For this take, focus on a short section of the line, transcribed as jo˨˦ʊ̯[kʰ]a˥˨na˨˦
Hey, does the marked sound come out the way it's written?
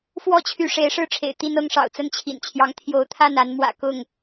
no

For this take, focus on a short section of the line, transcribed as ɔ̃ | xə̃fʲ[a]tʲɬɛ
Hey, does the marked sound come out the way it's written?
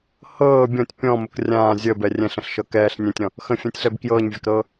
no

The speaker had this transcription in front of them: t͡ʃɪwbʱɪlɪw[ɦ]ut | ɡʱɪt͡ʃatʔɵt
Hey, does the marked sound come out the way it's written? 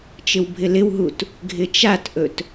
yes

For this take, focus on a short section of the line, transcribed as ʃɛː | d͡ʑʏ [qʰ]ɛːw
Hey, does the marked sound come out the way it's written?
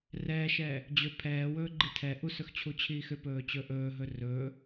no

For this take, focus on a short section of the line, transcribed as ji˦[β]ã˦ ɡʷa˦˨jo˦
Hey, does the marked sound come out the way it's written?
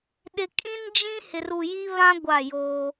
yes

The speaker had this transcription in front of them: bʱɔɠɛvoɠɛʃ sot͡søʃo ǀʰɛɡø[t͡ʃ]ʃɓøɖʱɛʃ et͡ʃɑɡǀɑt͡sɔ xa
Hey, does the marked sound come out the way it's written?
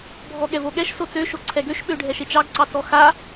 no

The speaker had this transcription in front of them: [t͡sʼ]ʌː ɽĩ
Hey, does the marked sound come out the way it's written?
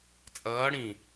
yes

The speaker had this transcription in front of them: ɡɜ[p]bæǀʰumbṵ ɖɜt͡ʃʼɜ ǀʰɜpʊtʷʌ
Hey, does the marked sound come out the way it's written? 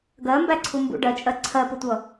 no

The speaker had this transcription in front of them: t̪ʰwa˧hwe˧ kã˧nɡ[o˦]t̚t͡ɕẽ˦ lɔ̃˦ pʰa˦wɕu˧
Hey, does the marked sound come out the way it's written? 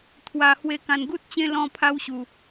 no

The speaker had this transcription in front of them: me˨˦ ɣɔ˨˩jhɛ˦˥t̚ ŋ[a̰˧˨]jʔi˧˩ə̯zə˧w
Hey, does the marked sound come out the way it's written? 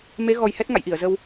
yes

